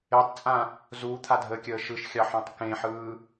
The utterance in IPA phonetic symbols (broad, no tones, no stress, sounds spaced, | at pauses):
e tˤ t͡sʼ ã | z uː t̪ʰ a dʱ əː kʲ əː ʃ ɯ ʃ xʲ ɑ ħ ɔ̃ tˤ k ẽ ħ ɯː